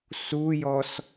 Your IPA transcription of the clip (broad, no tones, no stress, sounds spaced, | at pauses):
s u j ɔ s